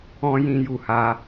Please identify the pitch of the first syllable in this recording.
high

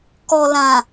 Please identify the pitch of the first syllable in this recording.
low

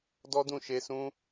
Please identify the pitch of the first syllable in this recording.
high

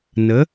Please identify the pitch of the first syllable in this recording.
rising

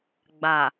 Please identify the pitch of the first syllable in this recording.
low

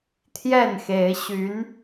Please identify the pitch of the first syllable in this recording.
falling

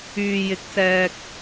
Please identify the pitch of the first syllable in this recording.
low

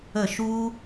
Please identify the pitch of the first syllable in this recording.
falling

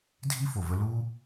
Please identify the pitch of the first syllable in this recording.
high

